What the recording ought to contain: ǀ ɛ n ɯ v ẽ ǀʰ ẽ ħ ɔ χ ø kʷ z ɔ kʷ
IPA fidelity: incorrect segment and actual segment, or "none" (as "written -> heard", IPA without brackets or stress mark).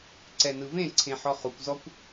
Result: ø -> u